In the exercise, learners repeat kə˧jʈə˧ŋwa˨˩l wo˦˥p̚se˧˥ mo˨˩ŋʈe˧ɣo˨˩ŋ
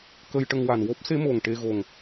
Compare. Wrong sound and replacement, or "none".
l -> n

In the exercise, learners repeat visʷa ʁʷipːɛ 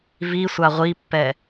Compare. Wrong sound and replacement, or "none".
none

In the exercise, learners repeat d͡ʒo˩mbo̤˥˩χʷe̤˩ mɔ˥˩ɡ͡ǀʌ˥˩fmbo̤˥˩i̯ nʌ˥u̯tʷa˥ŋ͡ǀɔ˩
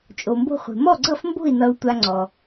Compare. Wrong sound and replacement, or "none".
d͡ʒ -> t͡ʃʼ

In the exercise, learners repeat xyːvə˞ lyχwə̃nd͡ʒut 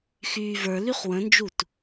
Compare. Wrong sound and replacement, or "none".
none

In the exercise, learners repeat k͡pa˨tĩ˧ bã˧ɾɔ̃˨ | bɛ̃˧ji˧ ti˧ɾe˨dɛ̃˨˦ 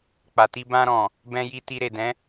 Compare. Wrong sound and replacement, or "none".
ĩ˧ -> i˧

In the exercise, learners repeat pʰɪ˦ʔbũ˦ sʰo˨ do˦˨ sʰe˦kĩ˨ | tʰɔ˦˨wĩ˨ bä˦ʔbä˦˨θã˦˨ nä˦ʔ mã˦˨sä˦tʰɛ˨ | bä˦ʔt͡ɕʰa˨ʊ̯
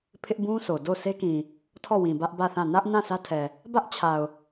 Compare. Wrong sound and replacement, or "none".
m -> n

